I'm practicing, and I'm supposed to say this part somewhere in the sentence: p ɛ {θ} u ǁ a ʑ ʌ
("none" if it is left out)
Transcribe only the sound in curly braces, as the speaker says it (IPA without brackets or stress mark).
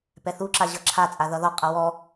θ